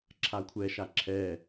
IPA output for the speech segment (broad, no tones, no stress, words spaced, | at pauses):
ǁʰakʷʰɛ ʃaǁʰɛ